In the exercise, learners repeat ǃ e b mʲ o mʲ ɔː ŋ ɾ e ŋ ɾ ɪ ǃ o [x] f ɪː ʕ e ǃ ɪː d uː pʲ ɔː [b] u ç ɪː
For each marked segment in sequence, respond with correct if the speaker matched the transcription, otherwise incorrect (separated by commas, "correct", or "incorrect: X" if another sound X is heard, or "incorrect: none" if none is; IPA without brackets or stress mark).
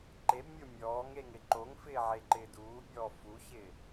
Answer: incorrect: ŋ, incorrect: f